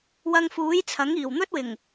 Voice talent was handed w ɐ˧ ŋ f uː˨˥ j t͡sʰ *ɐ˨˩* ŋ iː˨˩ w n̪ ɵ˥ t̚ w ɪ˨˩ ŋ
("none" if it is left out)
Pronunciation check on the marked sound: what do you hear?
ɐ˨˥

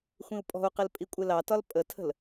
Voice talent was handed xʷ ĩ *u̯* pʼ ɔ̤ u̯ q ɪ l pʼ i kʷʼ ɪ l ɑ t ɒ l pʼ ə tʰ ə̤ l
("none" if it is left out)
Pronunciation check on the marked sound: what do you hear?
u̯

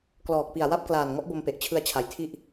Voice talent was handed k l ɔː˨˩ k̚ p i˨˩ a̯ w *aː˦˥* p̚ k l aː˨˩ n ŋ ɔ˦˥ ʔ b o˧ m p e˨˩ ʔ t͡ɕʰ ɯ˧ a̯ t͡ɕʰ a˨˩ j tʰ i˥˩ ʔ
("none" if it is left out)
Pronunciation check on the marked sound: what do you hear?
a˦˥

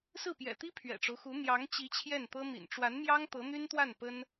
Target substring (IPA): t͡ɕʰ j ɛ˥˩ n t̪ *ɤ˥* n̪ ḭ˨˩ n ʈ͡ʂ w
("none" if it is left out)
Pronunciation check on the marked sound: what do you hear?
ɤ˥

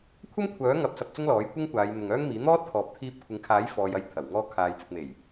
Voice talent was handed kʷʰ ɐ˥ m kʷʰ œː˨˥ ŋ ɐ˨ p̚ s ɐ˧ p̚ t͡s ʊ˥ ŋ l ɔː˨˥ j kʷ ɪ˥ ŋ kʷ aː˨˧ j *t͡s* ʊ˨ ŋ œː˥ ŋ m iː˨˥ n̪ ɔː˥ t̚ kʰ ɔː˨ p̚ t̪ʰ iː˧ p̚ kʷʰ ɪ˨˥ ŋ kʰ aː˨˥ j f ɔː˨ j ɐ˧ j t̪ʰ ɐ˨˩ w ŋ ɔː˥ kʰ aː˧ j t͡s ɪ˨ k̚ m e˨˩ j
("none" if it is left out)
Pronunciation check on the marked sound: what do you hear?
n̪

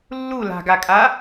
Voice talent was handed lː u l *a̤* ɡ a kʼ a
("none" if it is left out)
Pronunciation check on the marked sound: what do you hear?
a̤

